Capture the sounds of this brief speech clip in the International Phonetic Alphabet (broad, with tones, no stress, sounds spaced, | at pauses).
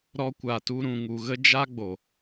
ɾ ɔ˧ kʷ a˨ t u˧ ɾ ũ˨ ŋ u˨ ɣ ə˦ d͡ʒ a˦ ɡ͡b o˨